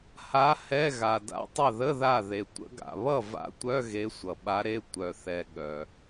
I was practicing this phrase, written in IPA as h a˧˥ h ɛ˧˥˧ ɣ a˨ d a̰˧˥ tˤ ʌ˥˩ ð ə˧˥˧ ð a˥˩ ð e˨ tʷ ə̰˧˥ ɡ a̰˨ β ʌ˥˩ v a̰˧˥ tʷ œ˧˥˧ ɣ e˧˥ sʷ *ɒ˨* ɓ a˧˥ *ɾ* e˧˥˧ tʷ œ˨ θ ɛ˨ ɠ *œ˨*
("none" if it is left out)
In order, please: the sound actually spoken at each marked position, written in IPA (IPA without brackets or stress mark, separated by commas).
ʌ˨, ɾ, œ˨